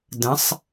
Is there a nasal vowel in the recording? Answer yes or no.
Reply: yes